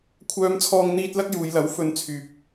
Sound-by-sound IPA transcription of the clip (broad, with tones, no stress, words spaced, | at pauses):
kʷʰœː˨˧m t͡sʰɔː˧ŋ n̪iː˥t̚ lɐ˥k̚juː˨˧jlɐ˨˥w fɵ˨˧nt͡sʰyː˨p̚